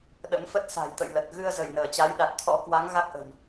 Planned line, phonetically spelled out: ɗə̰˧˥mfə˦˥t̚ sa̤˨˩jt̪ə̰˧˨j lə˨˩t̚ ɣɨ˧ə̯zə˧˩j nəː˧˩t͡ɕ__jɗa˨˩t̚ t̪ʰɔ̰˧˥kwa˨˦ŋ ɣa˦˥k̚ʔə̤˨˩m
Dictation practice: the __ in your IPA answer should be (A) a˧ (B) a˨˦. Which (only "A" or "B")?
B